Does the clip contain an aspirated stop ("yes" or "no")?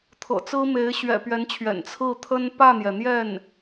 yes